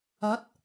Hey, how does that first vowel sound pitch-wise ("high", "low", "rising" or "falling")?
rising